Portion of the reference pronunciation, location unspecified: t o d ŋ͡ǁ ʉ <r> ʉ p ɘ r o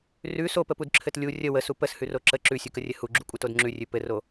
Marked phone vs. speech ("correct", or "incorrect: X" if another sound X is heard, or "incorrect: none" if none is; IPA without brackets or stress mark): incorrect: rʲ